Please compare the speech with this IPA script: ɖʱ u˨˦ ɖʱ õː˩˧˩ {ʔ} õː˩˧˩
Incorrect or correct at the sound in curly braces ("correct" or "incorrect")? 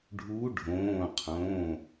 incorrect